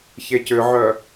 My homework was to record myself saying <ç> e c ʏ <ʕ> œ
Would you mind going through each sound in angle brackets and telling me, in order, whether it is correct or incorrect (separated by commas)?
correct, correct